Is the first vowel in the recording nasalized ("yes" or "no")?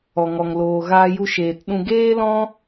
no